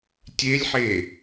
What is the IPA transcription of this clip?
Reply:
tʲelʲħe

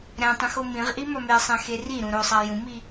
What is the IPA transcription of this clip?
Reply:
ɾæ̃tˤũx omĩʁʔi mɒmesˤæ̃ xeriɾũ ɾosˤa jũmi

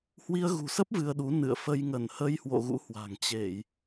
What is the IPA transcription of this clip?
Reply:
hwi˧ə̯ɣṳ˨˩sə˦˥p̚ vɨ˧ə̯ɗu˨˦ nɨ̰˧˨ə̯ fə˧j ŋə˧˩nhə˧jhwo̰˧˨ ɣṵ˧˥hwa̤˨˩ŋ t͡ɕe˧˩˨j

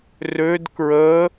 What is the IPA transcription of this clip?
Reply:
rød kɹə

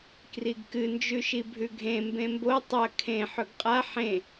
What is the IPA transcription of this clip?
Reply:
kriɡkɨ nd͡ʒʉʃibʱʉɡʱẽ mbẽmbo tˤɐ kʰẽ ħɵɡqʼa ħẽ

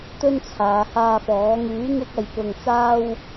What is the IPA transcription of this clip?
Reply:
t̪ɵ˧n t͡sʰaː˨˧haː˧fɔː˨˥ ŋyː˨˥ŋɪ˧k̚ ɐ˨jpʊ˨ŋt͡saː˧w

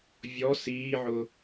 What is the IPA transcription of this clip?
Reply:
vʲɔ siːʕʊ

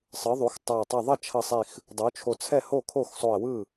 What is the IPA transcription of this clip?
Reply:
sˤɯ˩˥ðˤu˩˥x tˤa˧˩ tˤʌ˧˩ðˤʌ˥˩t͡ʃʰʌ˧˩ sˤi˧˩x | dˤu˩˥t͡ʃʰo˧˩ t͡sʰɛ˥˩ho˥˩kʰo˥˩xsˤo˧˩ə̯ wɯ˥˩

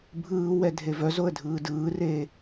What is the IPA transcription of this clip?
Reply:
bʱɯːwɛ dʱevœzoə̯ dʱɯːdɯːreː

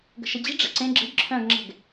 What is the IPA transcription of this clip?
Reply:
ɡə̤ʃəd͡ʑi̤ ɖ͡ʐə̰ǀẽ ɡ͡ǁə̤ɡ ǁʰœ̃ɡŋ͡ǁɛ̤ɡ

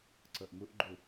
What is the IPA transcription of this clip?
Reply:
ǀɤʔmuʔɡ͡ǃu

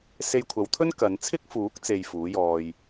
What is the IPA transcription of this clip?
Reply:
se˧jkʷʰɐ˨˧wt̪ʰɵ˥n kɐ˨˧nt͡sʰɪ˥k̚fuː˨˥k̚t͡se˨j fuː˨˥jɔː˧j

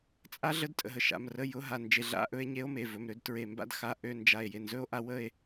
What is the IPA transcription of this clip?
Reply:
t͡sʼa˥ɮə˥d tʼə̰˧˩ɦə˧˩ʃa̰˩˧˩m rə˧˥˧jʊ˧˥˧ɦa˧˩ nd͡ʒe˧˩ɮa̰˧˥˧ʔɵ˥˧e̯ ɲe˥o̯me˩˧˩vɵ˩˧˩mɾø˥˧d tɹe˧˩mba̰˥d xa˧˥˧ ʔø˧˥˧ nd͡ʒa˧˩e̯ je˧˩nzɵ˧˥˧o̯ʔa˥˧ wə˥˧e̯

